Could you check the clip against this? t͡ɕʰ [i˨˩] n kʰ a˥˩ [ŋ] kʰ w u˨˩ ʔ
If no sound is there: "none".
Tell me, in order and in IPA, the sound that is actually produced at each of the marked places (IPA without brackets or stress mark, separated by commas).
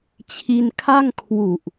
i˧, ŋ